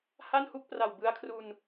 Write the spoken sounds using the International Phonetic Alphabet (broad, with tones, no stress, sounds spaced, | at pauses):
h a˥˩ n h u˥˩ k̚ p r a˨˩ w b ɯ˦˥ a̯ kʰ r u˧ n